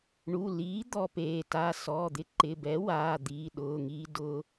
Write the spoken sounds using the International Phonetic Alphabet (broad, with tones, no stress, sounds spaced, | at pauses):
ɳ u˩˧˩ l iː˩˥ d̪ ɔ˧ p eː˩˧˩ t aː˧ s ɔ˩˧˩ d̪ ɪ˧ ǃ ɪ˩˧˩ b ɛ˩˥ w aː˩˧˩ d̪ iː˩˧˩ ɗ ʊː˩˧˩ ŋ iː˧ d ʊ˧